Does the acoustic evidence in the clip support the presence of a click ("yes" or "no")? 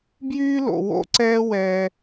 yes